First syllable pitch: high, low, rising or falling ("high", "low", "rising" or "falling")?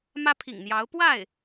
high